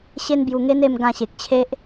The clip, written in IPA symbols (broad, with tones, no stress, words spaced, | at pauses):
ɕe˦nbju˧ŋe˦n e˥˧mɡã˧ɕe˨k̚t͡ɕʰe˦ʔ